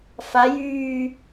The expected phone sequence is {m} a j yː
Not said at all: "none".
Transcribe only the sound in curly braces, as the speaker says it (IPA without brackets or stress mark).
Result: f